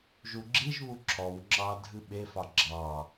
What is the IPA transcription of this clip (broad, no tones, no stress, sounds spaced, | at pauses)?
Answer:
ʒ u ɡ͡ǁ i ʒ β u ǁʰ ɔ w ŋ͡ǁ ɑ dʱ ɨ ɓ e f ɑ ɡ͡ǁ ɑ